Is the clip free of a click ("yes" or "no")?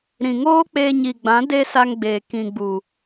yes